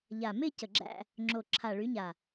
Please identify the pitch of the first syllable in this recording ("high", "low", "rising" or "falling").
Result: low